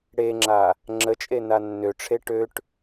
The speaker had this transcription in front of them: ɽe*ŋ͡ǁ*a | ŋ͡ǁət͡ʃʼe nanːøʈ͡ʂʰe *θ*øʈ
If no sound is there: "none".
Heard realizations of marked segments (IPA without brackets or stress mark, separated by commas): ŋ͡ǁ, ʈ